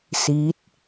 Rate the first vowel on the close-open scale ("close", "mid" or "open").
close